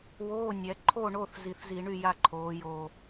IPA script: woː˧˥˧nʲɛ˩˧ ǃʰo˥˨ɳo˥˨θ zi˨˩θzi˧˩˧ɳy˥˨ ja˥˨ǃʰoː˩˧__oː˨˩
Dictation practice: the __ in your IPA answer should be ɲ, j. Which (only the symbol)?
j